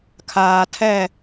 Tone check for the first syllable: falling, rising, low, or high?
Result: low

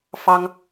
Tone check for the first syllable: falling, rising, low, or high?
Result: high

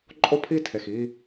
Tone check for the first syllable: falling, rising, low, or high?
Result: high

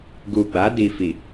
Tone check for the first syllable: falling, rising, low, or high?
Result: low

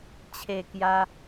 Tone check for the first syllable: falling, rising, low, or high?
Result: falling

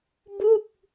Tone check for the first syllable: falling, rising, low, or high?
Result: falling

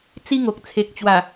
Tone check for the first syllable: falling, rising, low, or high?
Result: high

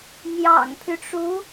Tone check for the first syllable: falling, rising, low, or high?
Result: low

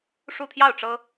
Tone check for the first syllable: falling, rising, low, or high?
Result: falling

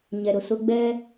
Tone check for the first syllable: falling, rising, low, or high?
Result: low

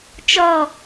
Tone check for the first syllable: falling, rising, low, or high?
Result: falling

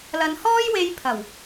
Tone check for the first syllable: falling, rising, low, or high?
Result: low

